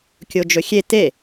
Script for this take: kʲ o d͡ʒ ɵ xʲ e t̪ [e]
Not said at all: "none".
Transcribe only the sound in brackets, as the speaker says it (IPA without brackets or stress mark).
e